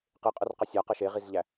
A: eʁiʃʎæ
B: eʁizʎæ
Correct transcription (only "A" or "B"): B